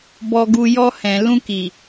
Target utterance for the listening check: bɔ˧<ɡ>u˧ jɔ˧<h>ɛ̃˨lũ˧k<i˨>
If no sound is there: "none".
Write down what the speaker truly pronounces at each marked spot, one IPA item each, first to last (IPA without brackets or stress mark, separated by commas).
ɡ, h, i˨